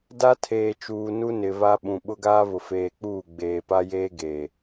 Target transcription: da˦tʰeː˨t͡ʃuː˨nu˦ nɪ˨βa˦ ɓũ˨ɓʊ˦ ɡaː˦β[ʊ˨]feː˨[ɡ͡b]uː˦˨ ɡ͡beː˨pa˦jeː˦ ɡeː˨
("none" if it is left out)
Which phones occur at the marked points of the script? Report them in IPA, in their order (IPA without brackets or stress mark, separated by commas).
ʊ˨, k͡p